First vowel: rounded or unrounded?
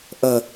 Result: unrounded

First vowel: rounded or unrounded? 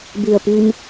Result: unrounded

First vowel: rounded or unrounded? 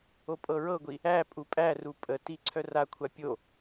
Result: rounded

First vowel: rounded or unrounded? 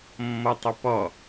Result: rounded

